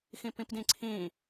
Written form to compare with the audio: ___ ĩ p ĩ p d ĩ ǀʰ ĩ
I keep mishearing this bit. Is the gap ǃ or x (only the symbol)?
x